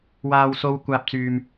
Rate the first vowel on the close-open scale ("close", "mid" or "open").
open